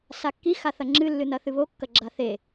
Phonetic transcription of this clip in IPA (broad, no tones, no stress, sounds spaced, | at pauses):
s a kː i x a θ ɐ ŋ͡ǁ ɨ lː ɨ n ɐ θ ɨ β o kː ɐ ɡ͡ǁ a θ e